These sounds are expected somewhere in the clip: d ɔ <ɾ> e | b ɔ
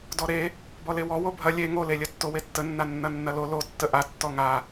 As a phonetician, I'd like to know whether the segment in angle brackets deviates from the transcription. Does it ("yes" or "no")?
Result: no